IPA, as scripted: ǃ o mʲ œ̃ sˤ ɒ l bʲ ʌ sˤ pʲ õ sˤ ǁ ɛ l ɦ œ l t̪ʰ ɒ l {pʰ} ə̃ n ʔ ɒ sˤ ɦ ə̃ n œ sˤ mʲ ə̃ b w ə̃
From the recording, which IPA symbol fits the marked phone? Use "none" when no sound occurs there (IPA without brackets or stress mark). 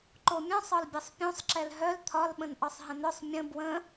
ɓ